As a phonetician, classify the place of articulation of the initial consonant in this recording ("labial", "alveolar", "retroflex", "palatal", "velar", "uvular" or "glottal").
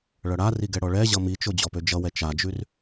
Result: retroflex